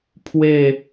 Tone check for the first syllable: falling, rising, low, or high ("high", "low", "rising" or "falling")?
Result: falling